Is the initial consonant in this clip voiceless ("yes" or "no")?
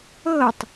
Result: yes